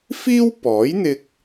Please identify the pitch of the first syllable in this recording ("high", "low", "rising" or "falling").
high